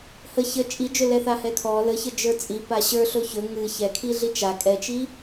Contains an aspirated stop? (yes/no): yes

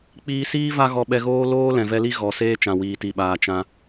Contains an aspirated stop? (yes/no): no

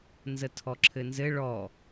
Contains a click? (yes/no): yes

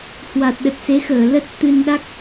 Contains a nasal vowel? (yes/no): no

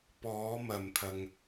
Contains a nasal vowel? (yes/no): no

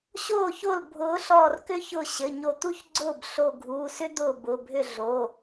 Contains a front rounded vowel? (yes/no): yes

